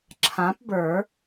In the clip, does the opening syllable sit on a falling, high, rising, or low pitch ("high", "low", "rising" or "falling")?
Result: rising